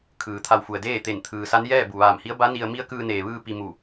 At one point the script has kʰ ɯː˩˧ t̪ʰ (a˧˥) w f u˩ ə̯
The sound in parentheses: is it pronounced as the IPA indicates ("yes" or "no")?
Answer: no